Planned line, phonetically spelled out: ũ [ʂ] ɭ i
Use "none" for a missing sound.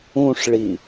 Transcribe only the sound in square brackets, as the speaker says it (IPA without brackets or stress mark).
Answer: ʂ